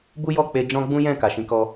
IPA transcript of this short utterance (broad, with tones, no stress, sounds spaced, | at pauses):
b u˦ j ɔ˦˨ k͡p e˧ d͡ʒ ɔ̃˦ ɡ͡b ũ˦ j ɛ̃˦˨ k a˨ ʃ ĩ˨˦ k ɔ˧